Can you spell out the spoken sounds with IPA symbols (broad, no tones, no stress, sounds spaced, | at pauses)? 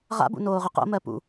ʁ a̰ b ṵ n oː ʁ ʏ q o̰ m ɜ p ṵ